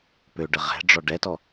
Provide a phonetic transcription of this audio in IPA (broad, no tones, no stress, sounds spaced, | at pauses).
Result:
p ø ɖ ə ʁ ɛ̤ ɖ͡ʐ ɔ ɖ ɛ t ɔ